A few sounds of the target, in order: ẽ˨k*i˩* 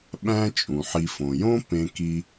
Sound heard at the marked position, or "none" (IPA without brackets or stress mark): i˨